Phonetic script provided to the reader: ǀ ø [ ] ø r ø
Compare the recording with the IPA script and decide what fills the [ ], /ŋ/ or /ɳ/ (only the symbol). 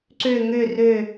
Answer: ŋ